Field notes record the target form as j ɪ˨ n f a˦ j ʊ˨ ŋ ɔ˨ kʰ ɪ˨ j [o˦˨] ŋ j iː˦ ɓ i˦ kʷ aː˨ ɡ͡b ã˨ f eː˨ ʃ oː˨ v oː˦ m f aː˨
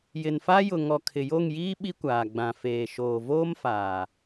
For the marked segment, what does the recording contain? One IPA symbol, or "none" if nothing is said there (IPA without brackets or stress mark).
o˦˨